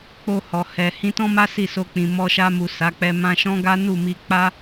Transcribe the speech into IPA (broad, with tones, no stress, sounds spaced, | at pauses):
k͡p o˧ h ɔ˨ h ɛ˨ h ĩ˧ t ɔ̃˦ m a˦ s i˦˨ s o˧ k͡p ĩ˨ m ɔ˧ ʃ a˧ m u˨ s a˨˦ k͡p ɛ˧ m ã˧ ʃ ɔ̃˦ ɡ a˦ n u˦˨ m i˧ k͡p a˦